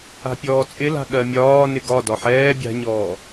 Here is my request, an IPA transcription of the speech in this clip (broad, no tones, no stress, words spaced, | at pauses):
a̤pʲɔːt͡sʼɪla̤ ɠɜmʲɒːnɪ ɡɒdɒ ħɛː bʲa̤ɲɔː